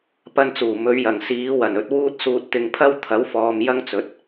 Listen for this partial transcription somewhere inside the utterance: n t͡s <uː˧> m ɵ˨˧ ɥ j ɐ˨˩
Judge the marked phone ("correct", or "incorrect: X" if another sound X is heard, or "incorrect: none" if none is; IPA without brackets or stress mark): incorrect: uː˨˩